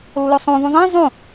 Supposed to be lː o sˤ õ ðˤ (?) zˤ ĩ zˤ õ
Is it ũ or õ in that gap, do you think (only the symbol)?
ũ